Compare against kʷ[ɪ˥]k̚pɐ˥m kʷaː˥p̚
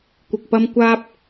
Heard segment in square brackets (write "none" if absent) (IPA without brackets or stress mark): ɪ˨